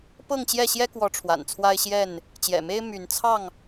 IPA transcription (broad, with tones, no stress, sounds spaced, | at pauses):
p ɤ˥˨ ŋ t͡ɕ j ɛ˥˨ ɕ j ɛ˦ k w ɔ˨˦ ʈ͡ʂʰ w a̰˨˩ n t͡sʰ w a˦ ɪ̯ ɕ j ɛ˥˨ n | t͡ɕ j ɛ̰˨˩ m e˦ ɪ̯ m y˨˦ n t͡sʰ ɑ˥˨ ŋ